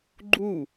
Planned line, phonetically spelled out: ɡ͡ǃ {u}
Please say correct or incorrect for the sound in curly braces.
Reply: correct